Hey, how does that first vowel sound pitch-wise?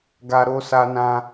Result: high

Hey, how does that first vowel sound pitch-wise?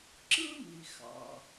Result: high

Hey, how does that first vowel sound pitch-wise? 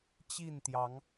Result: falling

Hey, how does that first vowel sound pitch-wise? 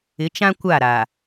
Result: rising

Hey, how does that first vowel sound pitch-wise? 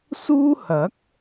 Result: high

